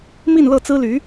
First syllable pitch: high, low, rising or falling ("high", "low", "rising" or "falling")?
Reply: falling